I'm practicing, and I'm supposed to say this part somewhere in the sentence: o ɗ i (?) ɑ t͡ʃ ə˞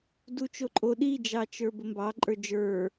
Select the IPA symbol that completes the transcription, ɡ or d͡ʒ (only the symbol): d͡ʒ